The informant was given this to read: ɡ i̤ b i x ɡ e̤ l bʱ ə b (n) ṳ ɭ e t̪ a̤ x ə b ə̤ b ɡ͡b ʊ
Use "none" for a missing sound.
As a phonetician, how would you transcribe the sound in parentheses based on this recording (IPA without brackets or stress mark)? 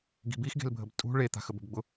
tʼ